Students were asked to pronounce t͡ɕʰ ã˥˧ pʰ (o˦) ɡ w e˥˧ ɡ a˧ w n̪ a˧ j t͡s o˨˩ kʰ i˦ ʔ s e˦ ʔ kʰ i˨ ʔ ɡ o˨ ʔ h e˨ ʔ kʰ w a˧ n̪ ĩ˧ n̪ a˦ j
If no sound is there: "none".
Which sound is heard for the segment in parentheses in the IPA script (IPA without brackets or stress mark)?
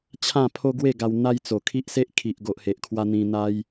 o˦